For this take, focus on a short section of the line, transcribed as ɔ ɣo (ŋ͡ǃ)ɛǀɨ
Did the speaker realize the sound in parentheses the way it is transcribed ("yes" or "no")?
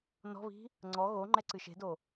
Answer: yes